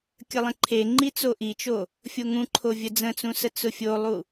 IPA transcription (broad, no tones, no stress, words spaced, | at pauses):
kʲəlˠĩǃʰeŋ͡ǃi t͡soʔit͡ʃo | fʲoŋũǃʰo vʲəd͡zə̃t͡sũ sət͡sʊfʲolˠu